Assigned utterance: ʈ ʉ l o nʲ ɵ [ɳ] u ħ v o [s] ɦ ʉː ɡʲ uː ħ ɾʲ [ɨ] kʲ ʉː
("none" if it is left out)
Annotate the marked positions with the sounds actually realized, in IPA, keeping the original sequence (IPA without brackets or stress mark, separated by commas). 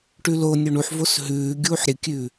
ɳ, s, ɨ